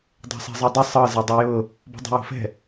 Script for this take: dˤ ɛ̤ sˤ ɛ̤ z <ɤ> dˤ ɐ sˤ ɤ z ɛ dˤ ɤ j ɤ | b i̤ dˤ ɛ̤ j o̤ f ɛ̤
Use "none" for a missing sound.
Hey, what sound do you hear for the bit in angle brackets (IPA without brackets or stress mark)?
ɤ